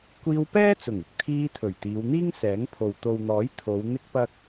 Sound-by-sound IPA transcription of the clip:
kʷ iː˧ w p ɛː˥ t͡s ʊ˨˩ ŋ ɪ˨ k̚ t̪ʰ iː˧ t̪ʰ ɵ˨˩ ɥ t̪ iː˨˧ w n̪ iː˥ ŋ s ɛː˨˥ ŋ pʰ o˨ w t̪ o˨ w n̪ ɔː˨˥ j t̪ʰ o˨˧ w n̪ ɪ˥ k̚ p ɐ˥ k̚

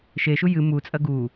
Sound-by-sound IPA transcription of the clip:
ʃ e ʃ u j ɨ m u t͡sʼ ɐ ɡ u

